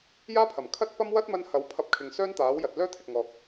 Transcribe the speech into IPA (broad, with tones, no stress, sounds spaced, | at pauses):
j aː˥ pʰ ɐ˨˩ m kʰ ɐ˥ t̚ p ɐ˥ m w ɐ˥ t̚ m ɐ˧ n h ɐ˨˥ w pʰ ɐ˧ p̚ kʰ ɪ˨ ŋ s œː˥ n t̪ aː˨˥ w j ɐ˨ t̚ l œː˥ t̪ʰ ɪ˨ k̚ ŋ ɔː˨ k̚